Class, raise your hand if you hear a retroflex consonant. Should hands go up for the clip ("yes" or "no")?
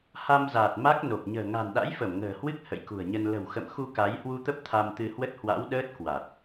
no